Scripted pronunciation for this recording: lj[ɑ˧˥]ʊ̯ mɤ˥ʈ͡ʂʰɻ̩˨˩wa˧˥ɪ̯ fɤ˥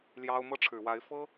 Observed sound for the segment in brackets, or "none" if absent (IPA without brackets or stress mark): ɑ˥